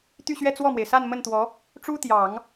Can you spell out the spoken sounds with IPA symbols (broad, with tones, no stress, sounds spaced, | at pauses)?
t̪ y˥˧ ɕ ɥ ɛ˥˧ t͡s w ɔ˥˩ m w e˩ ɪ̯ s a˥˧ n m ə˥˩ n t̪ w ɔ˧˥ | ʈ͡ʂ u˥ t̪ j ɑ˨˩˦ ŋ